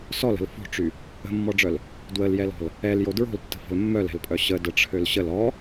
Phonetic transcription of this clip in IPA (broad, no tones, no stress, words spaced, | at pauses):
sɔlə̤l fo̤ʈ͡ʂy | ə̤mːɔɖ͡ʐœl | dwəljɛlɔ̤l | ɛljo dɹo̤ltːə̤fə̤l mːœlɛ̤lpʼœ ɕədəʈ͡ʂʰøl ɕəl ɔ